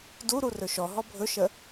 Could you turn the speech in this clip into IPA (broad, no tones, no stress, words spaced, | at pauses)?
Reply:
duɾu rɵʃɔɦɔ bʱɵʃə